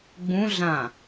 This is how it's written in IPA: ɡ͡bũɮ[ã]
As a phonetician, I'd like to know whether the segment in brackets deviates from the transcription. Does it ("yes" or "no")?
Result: no